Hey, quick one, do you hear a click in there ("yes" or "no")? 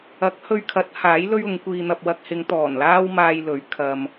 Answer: no